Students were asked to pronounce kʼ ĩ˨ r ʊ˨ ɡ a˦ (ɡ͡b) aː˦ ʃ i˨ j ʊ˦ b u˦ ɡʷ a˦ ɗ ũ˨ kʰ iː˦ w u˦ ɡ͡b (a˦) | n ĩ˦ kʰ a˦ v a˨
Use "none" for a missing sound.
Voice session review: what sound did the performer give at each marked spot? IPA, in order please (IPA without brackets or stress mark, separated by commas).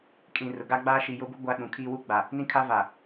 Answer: ɡ͡b, a˨